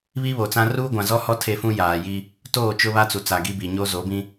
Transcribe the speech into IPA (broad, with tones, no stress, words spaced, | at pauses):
βi˦βo˨t͡sã˦ ruː˦ɡʷã˨zɔ˦hɔ˦ tʰe˦fũ˦jaː˨ji˦ | toː˦˨t͡ʃʊ˦βa˦ t͡su˨t͡sa˨ɡi˦bi˨ ɲo˦zo˨˦bĩ˦